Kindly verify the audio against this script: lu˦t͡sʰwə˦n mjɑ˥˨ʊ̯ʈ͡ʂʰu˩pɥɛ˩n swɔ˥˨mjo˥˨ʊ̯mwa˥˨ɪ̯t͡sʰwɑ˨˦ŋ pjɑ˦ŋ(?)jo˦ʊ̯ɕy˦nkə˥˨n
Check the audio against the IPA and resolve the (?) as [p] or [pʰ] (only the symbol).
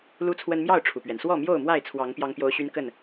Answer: p